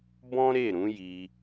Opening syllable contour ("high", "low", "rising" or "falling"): high